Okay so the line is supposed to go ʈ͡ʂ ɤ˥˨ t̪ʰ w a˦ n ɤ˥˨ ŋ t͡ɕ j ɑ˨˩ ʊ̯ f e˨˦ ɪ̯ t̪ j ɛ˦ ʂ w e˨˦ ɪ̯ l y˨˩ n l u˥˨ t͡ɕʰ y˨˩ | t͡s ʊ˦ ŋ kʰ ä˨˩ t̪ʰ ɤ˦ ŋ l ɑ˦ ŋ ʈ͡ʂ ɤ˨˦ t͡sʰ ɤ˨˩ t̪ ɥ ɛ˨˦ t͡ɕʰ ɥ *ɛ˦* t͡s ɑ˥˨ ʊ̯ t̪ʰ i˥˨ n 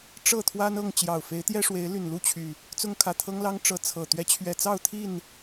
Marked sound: incorrect: ɛ˨˩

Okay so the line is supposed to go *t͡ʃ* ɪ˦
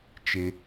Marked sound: correct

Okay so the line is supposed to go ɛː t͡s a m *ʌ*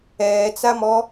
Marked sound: incorrect: ɔ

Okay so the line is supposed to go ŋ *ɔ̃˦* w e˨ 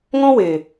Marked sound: correct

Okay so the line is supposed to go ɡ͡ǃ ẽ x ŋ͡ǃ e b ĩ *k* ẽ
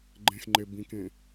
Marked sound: correct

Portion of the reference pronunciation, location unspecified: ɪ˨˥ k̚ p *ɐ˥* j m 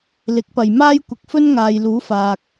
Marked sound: incorrect: ɐ˨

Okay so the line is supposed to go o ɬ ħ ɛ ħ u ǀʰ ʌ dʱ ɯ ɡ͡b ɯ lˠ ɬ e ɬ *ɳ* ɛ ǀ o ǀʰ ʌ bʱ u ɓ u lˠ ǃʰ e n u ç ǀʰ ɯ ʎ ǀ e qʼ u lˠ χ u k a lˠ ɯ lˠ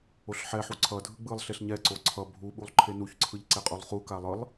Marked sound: incorrect: ɲ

